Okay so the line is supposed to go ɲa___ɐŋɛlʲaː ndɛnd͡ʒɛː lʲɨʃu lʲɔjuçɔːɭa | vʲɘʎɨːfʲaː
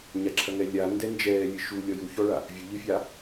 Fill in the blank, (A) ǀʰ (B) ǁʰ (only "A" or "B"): B